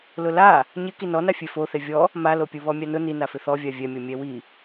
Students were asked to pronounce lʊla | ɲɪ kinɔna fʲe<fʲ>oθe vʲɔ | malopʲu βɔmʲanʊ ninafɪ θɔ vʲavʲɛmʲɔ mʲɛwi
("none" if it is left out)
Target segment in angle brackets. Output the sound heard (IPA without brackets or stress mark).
f